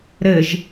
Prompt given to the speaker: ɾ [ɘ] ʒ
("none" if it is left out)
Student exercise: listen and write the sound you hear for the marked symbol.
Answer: ɘ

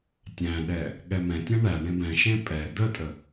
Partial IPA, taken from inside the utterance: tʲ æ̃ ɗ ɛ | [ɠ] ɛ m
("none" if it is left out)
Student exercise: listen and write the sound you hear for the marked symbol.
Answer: ɠ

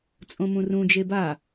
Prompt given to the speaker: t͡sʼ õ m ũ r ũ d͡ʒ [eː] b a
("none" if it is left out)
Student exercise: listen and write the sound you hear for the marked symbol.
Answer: e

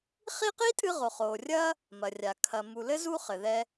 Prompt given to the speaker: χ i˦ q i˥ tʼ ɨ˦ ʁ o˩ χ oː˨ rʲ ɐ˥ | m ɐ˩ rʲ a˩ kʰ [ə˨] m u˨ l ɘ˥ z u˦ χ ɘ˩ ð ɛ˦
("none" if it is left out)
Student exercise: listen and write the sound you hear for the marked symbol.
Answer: ɐ˨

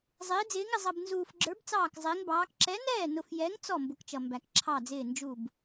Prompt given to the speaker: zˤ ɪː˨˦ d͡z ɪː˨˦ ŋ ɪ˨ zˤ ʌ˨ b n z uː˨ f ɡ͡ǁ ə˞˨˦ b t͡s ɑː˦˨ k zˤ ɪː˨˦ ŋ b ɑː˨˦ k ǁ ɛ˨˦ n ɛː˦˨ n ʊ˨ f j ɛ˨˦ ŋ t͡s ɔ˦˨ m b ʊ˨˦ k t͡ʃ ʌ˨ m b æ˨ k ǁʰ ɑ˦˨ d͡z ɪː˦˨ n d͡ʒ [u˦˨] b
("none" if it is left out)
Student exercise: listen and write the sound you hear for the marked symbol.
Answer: u˦˨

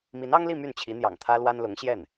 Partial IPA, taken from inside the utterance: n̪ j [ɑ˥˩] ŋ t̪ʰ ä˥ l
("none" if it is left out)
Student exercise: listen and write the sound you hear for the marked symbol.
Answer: ɑ̰˨˩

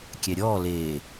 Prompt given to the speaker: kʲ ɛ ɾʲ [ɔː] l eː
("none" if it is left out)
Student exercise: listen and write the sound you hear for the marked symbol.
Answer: ɔː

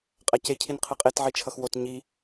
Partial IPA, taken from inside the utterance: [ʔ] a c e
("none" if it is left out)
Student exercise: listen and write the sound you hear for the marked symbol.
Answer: qʼ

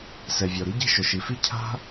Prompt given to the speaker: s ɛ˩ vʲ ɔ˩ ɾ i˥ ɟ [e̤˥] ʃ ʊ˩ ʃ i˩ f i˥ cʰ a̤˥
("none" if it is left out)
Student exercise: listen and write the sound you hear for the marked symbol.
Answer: e̤˥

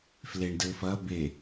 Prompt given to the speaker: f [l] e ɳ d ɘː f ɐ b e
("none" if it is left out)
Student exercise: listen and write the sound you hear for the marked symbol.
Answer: l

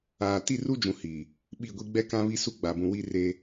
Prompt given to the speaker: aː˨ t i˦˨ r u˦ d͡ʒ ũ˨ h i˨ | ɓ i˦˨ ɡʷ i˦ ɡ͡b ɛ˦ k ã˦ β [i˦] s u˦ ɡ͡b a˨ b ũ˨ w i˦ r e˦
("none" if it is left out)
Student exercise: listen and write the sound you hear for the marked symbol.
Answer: i˦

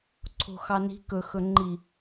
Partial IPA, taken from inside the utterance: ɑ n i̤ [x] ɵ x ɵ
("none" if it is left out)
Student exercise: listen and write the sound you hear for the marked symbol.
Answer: k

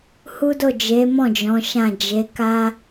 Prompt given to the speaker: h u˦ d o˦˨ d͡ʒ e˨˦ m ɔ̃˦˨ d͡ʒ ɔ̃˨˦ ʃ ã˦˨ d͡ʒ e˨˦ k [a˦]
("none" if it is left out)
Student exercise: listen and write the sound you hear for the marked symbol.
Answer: a˦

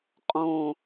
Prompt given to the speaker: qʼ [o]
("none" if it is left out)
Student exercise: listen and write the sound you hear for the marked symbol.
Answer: õ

